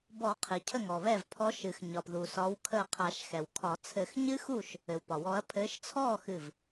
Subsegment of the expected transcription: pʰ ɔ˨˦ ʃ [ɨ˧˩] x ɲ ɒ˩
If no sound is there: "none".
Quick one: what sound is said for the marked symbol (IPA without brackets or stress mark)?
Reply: ɨ˩